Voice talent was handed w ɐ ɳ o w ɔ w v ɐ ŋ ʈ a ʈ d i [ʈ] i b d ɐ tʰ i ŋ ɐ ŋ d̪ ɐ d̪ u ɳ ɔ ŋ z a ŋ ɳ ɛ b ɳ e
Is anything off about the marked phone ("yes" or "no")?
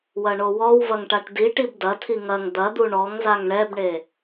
no